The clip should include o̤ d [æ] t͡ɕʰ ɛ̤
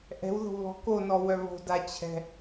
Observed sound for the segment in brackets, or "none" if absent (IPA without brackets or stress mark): a